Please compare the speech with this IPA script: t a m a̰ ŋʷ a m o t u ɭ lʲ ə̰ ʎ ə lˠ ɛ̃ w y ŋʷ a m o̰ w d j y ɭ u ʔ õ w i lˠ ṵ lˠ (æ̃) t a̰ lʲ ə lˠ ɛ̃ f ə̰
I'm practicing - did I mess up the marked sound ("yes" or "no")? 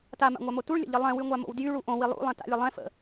yes